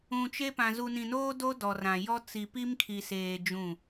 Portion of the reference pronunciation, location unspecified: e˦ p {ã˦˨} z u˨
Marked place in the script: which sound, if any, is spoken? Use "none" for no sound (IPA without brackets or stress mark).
ã˨